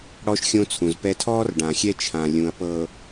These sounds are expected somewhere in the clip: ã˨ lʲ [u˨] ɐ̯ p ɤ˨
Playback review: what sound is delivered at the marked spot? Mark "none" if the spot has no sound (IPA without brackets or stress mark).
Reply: ũ˨